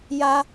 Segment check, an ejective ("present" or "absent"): absent